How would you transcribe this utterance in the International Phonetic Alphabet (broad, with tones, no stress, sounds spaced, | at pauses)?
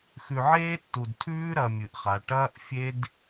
x ʉ˨ ʕ eː˦ tː u˨ d tʰ ʉː˦ ɾ ɐ˨ mʲ ɨ˨ ʔ χ a˨ ʈ ɐː˦ ʔ fʲ e˦ d